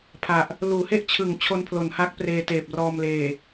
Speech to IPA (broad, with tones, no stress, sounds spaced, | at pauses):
pʰ a˨˩ ʔ | l uː˩˦ h e˥˩ ʔ t͡ɕʰ ɯ˩˦ ŋ t͡ɕʰ o˧ n pʰ l o˩˦ n h a˦˥ k̚ p r eː˧ t eː˨˩ p̚ r ɔː˧ m l eː˨˩